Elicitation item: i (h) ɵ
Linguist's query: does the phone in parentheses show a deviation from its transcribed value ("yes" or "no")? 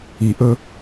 yes